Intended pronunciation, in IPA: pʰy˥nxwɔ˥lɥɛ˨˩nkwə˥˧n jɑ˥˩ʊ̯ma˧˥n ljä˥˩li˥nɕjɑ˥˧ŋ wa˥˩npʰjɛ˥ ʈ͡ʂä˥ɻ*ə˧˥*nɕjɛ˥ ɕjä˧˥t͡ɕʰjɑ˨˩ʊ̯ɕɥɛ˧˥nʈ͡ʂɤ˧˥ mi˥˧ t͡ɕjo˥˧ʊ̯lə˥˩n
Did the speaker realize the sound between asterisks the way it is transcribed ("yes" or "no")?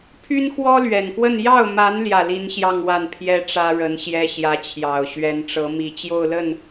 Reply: yes